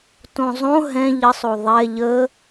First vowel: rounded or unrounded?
rounded